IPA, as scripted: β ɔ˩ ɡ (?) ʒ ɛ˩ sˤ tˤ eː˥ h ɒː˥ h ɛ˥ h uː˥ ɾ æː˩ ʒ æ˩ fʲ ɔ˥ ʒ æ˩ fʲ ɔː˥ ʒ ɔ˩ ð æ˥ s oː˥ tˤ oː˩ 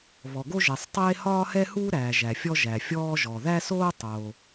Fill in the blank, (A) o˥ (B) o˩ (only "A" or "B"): A